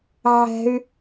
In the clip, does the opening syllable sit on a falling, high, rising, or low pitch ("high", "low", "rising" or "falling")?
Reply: high